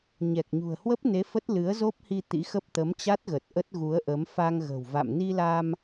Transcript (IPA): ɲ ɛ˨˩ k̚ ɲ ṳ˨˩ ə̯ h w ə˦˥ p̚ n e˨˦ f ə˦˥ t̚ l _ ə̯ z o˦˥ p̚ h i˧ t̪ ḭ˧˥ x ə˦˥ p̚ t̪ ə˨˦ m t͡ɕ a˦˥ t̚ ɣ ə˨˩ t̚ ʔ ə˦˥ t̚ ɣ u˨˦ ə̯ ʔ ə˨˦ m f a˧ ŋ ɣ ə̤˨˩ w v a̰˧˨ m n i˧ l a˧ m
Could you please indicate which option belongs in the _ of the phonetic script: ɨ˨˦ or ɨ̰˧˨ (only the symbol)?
ɨ˨˦